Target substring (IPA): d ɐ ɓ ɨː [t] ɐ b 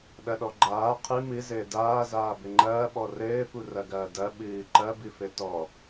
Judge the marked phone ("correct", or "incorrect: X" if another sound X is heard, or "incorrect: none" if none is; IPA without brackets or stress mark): incorrect: ǃ